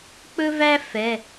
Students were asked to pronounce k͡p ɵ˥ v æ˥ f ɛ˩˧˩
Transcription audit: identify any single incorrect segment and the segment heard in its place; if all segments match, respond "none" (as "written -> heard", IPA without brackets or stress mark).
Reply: none